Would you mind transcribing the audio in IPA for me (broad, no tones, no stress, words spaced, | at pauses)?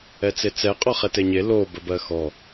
ɛt͡set͡sɛ qʼɔχɛteɲe lo bəbɜxɔ